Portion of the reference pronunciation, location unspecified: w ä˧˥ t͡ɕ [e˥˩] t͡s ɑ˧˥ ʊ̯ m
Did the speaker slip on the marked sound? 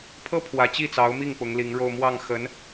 yes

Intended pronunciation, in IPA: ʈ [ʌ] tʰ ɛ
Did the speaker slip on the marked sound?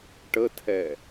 yes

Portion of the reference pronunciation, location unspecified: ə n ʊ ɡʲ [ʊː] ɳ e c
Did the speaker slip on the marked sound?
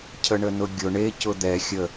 yes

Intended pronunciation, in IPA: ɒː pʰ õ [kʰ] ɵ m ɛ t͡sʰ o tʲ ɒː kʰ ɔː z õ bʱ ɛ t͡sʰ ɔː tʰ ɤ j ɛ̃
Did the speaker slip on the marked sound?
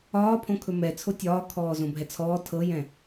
no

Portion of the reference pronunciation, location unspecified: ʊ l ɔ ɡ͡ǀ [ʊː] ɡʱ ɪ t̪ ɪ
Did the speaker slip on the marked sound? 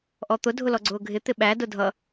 no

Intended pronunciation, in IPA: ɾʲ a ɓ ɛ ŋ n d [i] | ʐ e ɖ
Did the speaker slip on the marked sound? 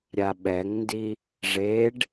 no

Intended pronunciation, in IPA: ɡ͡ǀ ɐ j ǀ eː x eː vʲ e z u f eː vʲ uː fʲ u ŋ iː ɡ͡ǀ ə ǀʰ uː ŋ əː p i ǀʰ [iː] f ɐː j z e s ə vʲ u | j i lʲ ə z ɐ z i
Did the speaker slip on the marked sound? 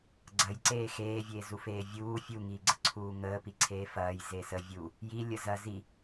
yes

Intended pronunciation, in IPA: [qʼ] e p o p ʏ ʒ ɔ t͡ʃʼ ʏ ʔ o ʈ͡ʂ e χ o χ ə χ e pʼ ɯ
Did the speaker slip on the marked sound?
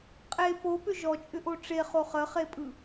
no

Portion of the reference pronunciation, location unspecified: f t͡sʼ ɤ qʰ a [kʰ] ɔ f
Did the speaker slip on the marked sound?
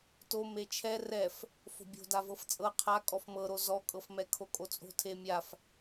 yes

